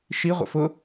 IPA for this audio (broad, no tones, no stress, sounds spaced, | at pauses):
ʃ i ʁʷ ə̰ f ʊ